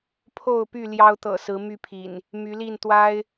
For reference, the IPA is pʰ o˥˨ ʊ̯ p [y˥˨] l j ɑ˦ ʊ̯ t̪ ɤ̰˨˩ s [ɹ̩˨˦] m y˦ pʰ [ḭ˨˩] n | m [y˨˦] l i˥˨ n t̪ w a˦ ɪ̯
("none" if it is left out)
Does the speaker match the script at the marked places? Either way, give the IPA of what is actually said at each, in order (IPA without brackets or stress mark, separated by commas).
y˥˨, ɹ̩˨˦, ḭ˨˩, y˨˦